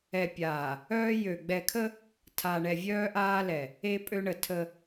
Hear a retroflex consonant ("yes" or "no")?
yes